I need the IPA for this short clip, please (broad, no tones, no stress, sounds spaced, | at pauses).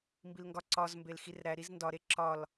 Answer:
m b i l ŋ ɡ ɒ ǀ ɒ z m b e l x i r ɾ æ ɾ i z n d ɒ ɾ e ǁ ɒ l